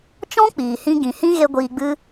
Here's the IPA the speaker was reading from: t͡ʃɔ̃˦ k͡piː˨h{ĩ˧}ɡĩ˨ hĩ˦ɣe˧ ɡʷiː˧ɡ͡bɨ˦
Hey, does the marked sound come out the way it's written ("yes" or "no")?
yes